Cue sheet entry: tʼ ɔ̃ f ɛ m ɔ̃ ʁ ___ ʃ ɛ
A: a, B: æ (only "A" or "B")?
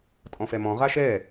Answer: A